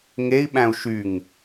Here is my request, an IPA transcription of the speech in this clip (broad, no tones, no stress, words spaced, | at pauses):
ŋei̯ɓæ̃u̯ ʃyŋ